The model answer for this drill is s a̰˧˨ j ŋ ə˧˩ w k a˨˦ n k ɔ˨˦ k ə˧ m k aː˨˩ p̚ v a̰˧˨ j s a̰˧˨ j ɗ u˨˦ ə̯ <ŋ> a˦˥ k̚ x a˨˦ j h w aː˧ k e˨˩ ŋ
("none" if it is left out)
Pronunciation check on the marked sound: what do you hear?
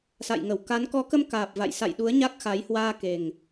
ɲ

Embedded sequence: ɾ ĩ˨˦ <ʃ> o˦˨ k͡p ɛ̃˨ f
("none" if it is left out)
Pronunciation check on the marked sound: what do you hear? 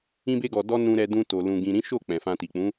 ʃ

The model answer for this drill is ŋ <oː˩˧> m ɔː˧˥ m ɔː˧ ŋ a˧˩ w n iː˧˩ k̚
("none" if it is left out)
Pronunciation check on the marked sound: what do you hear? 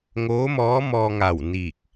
oː˧˥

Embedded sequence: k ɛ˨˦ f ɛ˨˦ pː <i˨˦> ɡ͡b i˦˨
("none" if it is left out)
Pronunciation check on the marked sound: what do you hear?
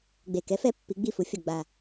i˨˦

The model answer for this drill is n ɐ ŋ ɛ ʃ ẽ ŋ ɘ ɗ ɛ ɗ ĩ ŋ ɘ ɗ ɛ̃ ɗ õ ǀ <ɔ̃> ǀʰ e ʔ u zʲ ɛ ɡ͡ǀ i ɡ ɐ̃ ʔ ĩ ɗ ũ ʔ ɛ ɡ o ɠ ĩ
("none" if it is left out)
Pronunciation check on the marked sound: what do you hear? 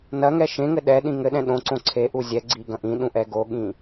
õ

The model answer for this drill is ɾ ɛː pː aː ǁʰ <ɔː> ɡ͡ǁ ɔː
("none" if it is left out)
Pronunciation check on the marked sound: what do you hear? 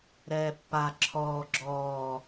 ɔː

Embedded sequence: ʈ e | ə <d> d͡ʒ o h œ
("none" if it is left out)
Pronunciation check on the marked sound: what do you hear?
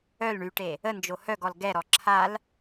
n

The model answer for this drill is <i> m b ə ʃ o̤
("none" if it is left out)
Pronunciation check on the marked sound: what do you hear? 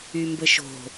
y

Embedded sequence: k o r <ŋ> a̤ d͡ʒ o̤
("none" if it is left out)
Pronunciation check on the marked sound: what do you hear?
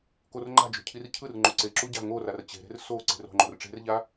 ŋ͡ǃ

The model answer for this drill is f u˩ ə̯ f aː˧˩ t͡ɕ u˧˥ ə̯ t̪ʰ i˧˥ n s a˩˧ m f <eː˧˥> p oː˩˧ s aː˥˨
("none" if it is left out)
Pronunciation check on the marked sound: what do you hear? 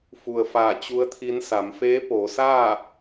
eː˧˥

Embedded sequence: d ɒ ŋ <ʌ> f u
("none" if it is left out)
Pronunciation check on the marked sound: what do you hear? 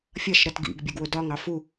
ɑ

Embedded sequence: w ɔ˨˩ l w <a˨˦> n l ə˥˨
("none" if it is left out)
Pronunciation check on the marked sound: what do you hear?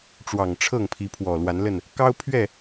a˨˦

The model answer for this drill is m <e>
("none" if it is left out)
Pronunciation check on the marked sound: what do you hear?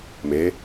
e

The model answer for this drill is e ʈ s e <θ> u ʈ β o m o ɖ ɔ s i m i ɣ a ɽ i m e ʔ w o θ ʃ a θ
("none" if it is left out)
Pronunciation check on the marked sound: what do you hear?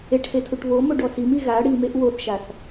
tʰ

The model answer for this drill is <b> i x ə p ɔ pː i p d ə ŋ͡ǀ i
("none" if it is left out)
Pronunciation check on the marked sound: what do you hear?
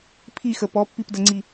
pʰ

